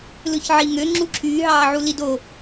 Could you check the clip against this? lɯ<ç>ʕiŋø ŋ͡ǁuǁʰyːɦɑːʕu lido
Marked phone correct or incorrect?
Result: correct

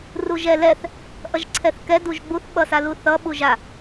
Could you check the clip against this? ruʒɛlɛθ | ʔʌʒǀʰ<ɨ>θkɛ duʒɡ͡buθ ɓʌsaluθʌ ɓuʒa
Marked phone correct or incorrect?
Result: incorrect: ɛ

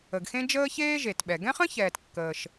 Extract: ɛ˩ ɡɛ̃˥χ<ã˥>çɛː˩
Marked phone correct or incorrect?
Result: incorrect: ə̃˥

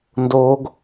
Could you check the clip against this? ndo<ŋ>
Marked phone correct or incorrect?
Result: incorrect: ɡ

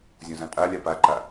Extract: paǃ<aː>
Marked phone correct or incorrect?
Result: incorrect: a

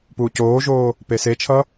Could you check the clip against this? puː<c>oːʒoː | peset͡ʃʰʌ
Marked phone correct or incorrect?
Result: correct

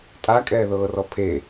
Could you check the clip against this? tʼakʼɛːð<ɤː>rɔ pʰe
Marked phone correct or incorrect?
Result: correct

